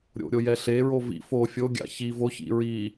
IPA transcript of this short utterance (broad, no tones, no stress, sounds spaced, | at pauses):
ɾʲ o̰ ɾʲ o j ɛ ɬ e ɹ o v ḭ f o fʲ o ɡʲ a̰ ç i v o ç ḭ ɹ i